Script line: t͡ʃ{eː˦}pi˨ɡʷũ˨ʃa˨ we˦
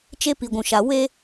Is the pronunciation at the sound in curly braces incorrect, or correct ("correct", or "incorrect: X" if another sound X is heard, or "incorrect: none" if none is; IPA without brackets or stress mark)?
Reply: incorrect: e˦